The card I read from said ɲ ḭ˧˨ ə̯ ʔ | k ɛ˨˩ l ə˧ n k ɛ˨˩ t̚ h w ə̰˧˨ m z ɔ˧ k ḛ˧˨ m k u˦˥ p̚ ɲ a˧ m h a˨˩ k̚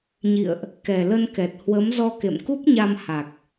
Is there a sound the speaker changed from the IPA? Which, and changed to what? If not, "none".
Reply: ə̰˧˨ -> ə˨˦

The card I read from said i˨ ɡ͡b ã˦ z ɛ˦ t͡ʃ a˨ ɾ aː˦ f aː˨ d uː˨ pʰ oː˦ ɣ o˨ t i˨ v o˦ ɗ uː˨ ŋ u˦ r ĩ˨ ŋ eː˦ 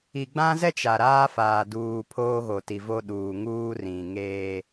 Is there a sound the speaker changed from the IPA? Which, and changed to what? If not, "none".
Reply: u˦ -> uː˦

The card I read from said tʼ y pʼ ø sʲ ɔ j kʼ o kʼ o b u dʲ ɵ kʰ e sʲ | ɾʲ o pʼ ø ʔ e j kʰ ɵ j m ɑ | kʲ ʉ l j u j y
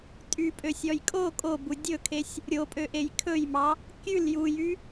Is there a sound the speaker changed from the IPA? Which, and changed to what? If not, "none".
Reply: none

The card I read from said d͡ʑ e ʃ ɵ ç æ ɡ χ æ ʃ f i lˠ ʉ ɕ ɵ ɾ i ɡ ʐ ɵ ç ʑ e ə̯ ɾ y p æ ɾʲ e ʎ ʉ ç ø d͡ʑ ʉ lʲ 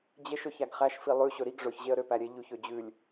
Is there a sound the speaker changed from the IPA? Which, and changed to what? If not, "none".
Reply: y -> ø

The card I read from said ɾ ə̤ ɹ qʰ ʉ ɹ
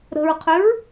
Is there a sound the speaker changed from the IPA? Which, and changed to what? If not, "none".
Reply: ʉ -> ø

